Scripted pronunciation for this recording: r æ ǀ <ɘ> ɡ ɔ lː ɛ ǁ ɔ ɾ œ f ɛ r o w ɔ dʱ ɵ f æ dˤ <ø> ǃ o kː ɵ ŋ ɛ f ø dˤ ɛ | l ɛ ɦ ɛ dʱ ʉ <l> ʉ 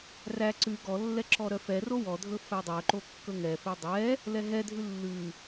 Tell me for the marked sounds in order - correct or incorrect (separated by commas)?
incorrect, incorrect, incorrect